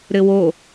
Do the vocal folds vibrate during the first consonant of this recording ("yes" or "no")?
yes